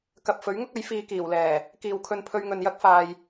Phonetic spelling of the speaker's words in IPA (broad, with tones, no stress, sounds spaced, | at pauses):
k ɐ˨ p̚ f ɵ˨˥ ɥ ŋ ʊ˥ k̚ ɐ˨˥ j f iː˧ k iː˨˩ w l ɛː˨˩ | k iː˨ w kʰ ɵ˧ n pʰ ɵ˧ ɥ ŋ ɵ˨ n j ɐ˥ k̚ f aː˨ j